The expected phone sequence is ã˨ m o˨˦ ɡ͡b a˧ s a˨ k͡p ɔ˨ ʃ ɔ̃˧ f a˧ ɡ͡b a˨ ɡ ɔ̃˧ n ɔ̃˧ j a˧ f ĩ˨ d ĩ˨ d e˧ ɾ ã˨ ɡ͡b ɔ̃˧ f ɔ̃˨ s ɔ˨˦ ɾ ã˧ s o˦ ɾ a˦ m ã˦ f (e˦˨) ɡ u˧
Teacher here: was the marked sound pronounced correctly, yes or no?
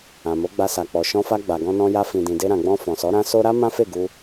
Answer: yes